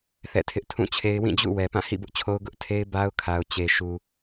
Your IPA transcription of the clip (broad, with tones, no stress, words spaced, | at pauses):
θɛ̰˦˨tʰɪ˦ʔ tʰũ˦˨t͡ɕʰe˦ɪ̯ wĩ˦˨d͡ʑṵ˦˨ wɛ˨ pã˦˨hḭ˦˨bʊ˦ʔt͡ɕʰo˦ʊ̯ ɡʊ˦ʔtʰe˦ɪ̯ ba˦ʊ̯kʰa˨ʊ̯ t͡ɕe˨ʃu˨